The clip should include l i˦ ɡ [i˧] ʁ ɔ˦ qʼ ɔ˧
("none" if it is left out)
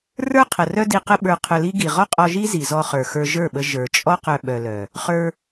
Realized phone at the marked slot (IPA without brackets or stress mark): i˨